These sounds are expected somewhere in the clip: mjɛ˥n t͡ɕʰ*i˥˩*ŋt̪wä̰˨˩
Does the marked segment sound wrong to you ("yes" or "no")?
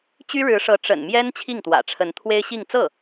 no